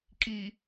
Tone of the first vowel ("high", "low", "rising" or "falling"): low